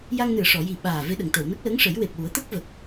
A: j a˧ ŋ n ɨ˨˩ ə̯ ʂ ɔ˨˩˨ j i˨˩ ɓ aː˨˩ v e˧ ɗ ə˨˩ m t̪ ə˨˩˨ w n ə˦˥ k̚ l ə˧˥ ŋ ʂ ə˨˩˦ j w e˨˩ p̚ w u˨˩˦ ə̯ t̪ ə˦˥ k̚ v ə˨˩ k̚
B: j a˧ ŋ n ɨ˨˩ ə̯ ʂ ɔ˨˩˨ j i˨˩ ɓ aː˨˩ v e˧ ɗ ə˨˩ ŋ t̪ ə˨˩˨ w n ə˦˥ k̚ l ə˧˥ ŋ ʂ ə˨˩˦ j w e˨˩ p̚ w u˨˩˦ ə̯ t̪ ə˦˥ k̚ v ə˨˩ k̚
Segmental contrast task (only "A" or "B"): B